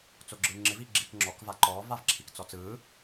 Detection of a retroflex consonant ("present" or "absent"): absent